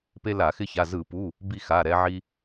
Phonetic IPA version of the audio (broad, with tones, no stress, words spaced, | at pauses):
pe˦la˧˩˧xɪ˦ça˩˧˩ zɯ˧˩˧pu˩˧˩ | bi˦˨xa˩˧˩ ɾɛ˦ʕi˦